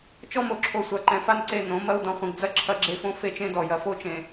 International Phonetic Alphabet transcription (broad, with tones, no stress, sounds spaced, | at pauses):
t͡ʃ ɔ˦ m o˨ ǁʰ o˨ sʷ a˨ ǃ ɛ̃˨ f a˦ n ǀ e˦˨ n õ˨˦ m ɐ˦ u̯ d ɔ̃˨ χʷ ẽ˨ ɡ d͡z ɐ˦˨ ǁʰ ɐ˦ ɡ͡ǁ e˦ f õ˦ f e˦ t͡ʃ ẽ˦ d ɔ˨ j ɐ˨ f o˦ t͡ʃ ẽ˨